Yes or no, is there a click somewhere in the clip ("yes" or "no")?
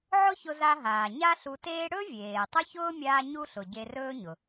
no